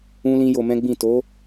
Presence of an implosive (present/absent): absent